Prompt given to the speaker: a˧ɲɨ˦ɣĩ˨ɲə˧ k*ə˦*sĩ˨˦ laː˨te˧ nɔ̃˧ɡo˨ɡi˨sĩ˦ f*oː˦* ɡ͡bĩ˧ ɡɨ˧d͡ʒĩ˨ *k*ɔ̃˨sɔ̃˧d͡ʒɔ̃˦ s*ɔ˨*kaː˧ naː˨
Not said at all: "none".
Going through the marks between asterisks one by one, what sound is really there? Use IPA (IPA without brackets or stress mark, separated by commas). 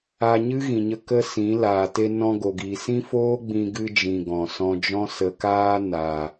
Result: ə˦, oː˦, ɡ, ə˨